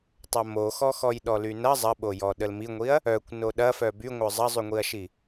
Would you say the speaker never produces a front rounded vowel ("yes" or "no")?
no